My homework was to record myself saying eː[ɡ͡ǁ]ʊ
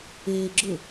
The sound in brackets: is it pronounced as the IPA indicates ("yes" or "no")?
yes